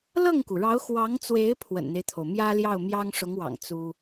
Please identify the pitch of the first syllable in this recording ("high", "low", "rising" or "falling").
falling